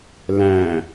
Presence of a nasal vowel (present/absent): present